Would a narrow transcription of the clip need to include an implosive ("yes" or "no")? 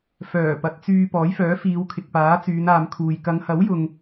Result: no